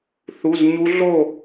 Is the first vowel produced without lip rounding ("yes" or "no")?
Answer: no